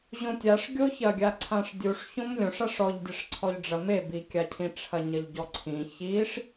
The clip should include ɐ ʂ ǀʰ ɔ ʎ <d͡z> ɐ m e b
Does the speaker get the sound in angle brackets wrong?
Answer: yes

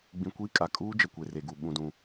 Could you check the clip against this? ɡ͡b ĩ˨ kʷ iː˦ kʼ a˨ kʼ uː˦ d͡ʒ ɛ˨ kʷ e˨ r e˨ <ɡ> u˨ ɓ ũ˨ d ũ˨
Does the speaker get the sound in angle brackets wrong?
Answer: no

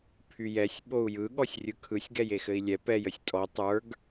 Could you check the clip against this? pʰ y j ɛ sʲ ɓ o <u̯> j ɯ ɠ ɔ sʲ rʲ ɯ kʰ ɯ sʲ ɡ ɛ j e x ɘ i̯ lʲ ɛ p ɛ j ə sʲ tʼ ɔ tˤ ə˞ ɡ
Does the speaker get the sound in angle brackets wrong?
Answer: no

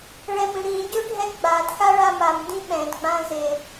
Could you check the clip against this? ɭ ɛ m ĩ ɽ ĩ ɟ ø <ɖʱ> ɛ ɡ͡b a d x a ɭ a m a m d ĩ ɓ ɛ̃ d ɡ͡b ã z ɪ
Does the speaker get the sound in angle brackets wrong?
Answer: no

